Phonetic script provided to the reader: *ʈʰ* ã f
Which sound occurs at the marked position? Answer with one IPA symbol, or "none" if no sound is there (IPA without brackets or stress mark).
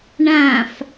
ɳ